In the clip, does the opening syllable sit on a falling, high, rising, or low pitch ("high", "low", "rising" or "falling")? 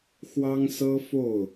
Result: high